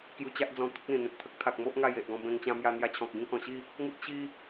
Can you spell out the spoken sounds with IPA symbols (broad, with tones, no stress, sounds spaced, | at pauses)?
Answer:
k j u˧ t͡ɕ a˦ ʔ d͡z ɔ̃˧ t̪ ə˦ k̚ l ĩ˨˩ n̪ ẽ˨ t̚ t̪ʰ ə˦ k̚ t̪ʰ a˨ k̚ m o˦ ʔ ŋ a˥˧ j e˨ ʔ ɡ ɔ̃˥˧ b ẽ˧ ŋ t͡ɕ ã˧ m j a˧ n̪ j a˧ t͡ɕʰ ɔ̃˨ k̚ ɡ ĩ˥˧ k ɔ̃˨˩ ɕ i˥˧ | ŋ u˦ t̚ ɕ i˦